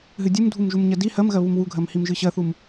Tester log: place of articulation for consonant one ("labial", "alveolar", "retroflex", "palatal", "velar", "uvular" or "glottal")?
glottal